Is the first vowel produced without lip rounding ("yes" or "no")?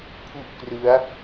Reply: no